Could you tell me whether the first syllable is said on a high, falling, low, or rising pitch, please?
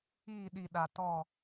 falling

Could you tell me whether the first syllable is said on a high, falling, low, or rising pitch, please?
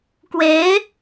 rising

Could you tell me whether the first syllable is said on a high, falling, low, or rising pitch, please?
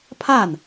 falling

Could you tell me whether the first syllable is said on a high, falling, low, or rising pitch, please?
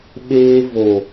high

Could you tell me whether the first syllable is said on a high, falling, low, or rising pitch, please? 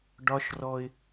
high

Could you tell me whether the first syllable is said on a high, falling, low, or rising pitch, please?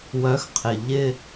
rising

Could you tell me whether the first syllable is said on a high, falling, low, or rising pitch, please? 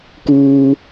low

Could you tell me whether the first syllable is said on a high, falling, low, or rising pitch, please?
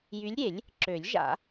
rising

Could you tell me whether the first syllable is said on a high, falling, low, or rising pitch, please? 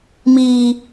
high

